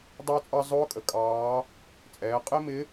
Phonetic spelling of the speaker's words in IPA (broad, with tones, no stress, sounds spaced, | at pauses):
dˤ ɑ˧ t͡sʼ ɑ˧ zˤ ʊː˧˥ kʼ ə˩ kʼ ɑː˧˥ | t͡sʼ ɛː˩˧ qʼ ɪ˥ m ɪ˧˥